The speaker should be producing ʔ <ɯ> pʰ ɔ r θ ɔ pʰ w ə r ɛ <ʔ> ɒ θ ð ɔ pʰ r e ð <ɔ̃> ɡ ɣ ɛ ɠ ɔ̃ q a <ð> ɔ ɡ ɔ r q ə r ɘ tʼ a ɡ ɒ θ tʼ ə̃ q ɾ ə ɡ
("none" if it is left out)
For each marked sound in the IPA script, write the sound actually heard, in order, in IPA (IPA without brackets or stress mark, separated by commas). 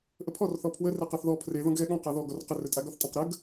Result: ə, q, ɔ̃, ð